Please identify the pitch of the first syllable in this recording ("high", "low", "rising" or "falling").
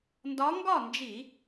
rising